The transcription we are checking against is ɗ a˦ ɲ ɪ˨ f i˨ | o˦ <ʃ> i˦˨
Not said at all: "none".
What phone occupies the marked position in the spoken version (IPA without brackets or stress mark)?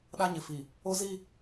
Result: z